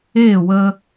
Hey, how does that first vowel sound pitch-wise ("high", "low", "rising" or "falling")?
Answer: falling